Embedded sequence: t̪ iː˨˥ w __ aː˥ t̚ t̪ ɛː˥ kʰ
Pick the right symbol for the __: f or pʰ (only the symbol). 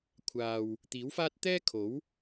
f